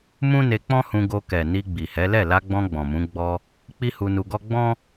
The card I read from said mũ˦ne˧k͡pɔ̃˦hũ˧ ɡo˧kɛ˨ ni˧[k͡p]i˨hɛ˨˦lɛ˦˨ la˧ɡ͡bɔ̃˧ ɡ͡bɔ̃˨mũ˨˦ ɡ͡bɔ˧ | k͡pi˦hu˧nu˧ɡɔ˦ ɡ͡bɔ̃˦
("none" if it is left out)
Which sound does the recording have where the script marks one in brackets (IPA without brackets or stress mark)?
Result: ɡ͡b